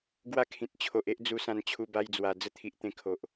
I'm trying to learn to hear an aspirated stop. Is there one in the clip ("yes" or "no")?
yes